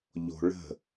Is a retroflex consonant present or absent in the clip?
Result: present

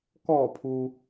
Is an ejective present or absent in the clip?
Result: absent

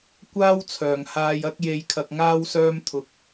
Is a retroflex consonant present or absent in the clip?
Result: absent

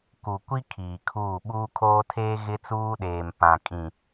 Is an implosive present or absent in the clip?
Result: present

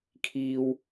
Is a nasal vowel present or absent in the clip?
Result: absent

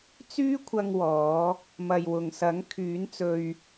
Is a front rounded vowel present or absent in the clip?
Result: present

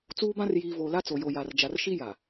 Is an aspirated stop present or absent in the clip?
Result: absent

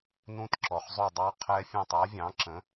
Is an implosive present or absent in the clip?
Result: absent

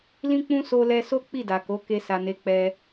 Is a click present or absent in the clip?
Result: absent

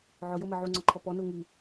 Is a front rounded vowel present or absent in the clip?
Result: absent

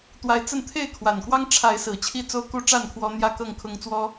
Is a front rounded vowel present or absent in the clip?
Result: absent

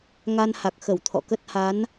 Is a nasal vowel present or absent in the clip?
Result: absent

